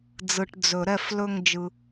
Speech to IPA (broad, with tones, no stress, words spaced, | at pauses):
d͡zɯ˨ʈ d͡zɵ˨˩˦ɾɛ˦˨f lɵ˦˨ŋd͡ʒɯ˨